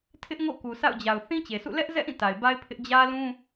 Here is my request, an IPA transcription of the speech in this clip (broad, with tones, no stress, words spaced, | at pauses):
tʰɪ˦ʔŋo̰˦˨ ku˨sa̰˦˨ʊ̯d͡ʑa˨ʊ̯ θĩ˦t͡ɕe˨sʰṵ˦˨ lɛ˦ʔzɛ̰˦˨ʔĩ˦˨ ta˨ɪ̯ba˦ɪ̯pʰɪ˦ʔ d͡ʑä˦lũ˦